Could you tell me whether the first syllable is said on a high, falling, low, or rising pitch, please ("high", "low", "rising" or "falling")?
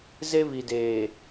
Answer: high